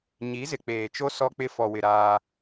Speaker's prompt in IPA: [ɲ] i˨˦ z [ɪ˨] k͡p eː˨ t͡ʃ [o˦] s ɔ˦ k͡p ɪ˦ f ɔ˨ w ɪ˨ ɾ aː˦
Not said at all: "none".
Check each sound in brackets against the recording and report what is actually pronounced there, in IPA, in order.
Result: ɲ, ɪ˨, o˦

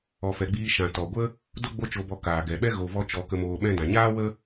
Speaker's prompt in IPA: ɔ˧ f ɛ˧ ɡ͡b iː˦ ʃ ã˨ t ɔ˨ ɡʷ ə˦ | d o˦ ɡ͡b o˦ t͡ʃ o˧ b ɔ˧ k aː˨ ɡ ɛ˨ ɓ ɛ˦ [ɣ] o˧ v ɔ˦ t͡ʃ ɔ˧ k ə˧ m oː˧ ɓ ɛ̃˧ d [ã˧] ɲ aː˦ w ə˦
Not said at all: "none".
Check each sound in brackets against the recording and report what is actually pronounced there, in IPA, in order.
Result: ɣ, ã˨

